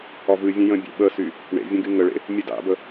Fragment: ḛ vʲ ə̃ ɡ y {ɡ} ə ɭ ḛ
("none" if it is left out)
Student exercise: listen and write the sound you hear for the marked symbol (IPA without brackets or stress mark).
ŋ